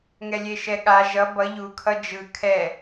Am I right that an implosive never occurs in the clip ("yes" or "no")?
no